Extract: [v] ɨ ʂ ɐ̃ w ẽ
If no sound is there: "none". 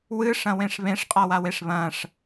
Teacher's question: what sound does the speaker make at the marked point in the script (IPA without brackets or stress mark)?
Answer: w